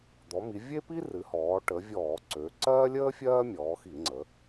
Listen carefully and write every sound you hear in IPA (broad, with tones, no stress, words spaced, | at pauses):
d̪ɔ˩˧mi˩˧vʲe˥pi˥ rɨ˩˧hɔː˩˧ ʈə˩˧vʲɔː˧˩˧ ǀø˩˧ ǀɜː˥lʲəː˥ fʲɜː˥mʲɔː˩˧xi˧˩˧ŋ͡ǀə˩˧